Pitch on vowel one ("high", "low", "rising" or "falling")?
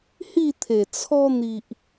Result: falling